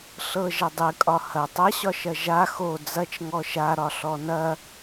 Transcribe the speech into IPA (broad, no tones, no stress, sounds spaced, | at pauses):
ɬ ɤ ʒ ɐ dˤ ɨ kʼ ɒ h ɐ tˤ ɐ ɕ ɒ ʃ ɐ ʒ a x o d͡z ɐ t͡ʃ ŋ ɔ ʃ a ɾ ɒ ɬ ɔ n ɐ